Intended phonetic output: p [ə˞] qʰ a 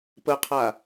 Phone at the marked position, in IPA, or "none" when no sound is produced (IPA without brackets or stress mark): ə